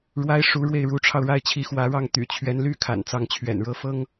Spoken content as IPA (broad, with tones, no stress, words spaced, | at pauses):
ɻwa˥ɪ̯ʂu˧˥ɻwe˥˩ɪ̯ ɻu˧˥ʈ͡ʂʰɑ˧ʊ̯ ɻa˥˩ɪ̯t͡ɕʰi˧˥xwä˧˥ɻɑ˥˩ŋ t̪y̰˨˩t͡ɕʰɥɛ˧˥nly˥ kʰa̰˨˩nt͡sɑ˥˩ŋt͡ɕʰɥɛ̰˨˩nɻɤ˥ fɤ˥ŋ